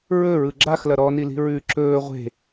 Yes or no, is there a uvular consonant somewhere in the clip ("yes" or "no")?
yes